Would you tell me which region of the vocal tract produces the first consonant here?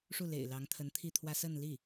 retroflex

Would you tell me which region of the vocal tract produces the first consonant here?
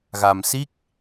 velum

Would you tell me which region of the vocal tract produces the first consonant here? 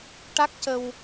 retroflex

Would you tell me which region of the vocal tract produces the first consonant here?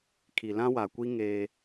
velum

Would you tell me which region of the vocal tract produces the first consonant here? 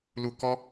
tongue tip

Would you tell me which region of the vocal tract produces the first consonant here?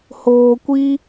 throat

